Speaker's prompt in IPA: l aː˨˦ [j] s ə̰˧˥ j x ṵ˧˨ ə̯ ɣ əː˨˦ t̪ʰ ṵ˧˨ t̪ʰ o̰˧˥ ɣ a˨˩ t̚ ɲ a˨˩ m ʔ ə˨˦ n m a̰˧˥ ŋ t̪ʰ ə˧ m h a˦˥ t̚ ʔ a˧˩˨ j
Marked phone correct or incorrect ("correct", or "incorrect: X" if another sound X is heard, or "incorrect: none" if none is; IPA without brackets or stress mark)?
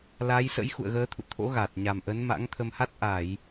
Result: correct